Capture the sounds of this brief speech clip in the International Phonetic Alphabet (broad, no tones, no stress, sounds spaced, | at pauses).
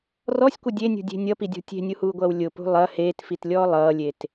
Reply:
r ɔ sʲ kʷ ʌ dʲ e nʲ ṳ dʲ e̤ nʲ ʌ p i dʲ ɔ̤ tʲ e̤ nʲ u h uː ɡʷ ʌː w lʲ ʊ p ṳ lˠ ɐ h eː t f i t lʲ ɔː lˠ ʌː lʲ e t